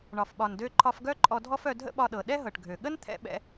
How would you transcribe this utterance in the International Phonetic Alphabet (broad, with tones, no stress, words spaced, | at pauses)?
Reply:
ɳɒ˩fɓɒ˩ndø˧ ǃʰɒ˧fɡœ˥ ǃʼɔ˧dʱɔ˥fœ˧ dʱə̰˥ɓɒ˧ɗɤ˩ ɗɛ˥ɦɤ˩ʈɡʱø˩ ɠə˥nt̪ʰɛ̰˧ ɓɛ̰˧